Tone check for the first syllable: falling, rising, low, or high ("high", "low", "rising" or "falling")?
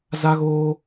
high